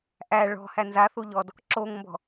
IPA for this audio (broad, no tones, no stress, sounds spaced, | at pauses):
ʔ æ ɭ ɔ̤ h æ n z a θ u ʎ ɔ d | ǁ o ŋ m b ɔ̤